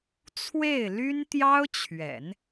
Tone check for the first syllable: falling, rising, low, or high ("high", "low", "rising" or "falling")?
falling